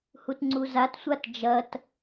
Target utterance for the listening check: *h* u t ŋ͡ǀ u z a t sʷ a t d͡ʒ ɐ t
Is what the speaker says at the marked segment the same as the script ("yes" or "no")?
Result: yes